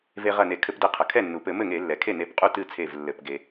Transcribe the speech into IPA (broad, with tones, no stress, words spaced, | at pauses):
ve˧ʁɐ˧˩ne˧˩˧ kʰɘ˧˩˧pde˧˩qʰɐ˩ kʰɛ˥˩nːu˩pɘ˧˩˧ mɘ˥˩ŋe˧˩˧lːɛ˩kʰe˥˩ ne˧˩pqʼu˥˩tɨ˥˩t͡sʰe˧˩v lːɘ˧˩˧pɡe˧